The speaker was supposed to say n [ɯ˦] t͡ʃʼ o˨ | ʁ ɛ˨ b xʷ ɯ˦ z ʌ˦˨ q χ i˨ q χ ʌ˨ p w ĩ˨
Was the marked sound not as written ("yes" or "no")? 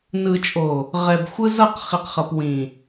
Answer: yes